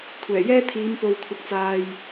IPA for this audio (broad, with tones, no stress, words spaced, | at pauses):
kʷʰɛː˨˩jɛː˥t̪ʰiː˨˧m po˨wkʷʰɐ˨k̚t͡saː˨j